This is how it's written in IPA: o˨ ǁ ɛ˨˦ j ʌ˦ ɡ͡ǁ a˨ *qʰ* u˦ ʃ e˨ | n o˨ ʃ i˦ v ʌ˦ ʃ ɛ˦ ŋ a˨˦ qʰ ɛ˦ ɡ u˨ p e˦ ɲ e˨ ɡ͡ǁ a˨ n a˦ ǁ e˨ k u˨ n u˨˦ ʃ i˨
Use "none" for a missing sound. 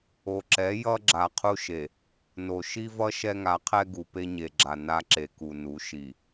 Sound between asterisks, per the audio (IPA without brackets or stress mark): qʰ